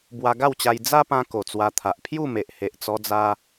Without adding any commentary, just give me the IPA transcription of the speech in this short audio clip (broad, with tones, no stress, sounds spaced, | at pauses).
b w a˧ ɡ a˥˧ w t͡ɕ a˧ j d͡z a˦ p ã˧ k o˨˩ t͡s w a˧ t̪ʰ a˨ ʔ pʰ j u˥˧ m e˨ ʔ h e˨ ʔ t͡s ɔ˧ d͡z a˧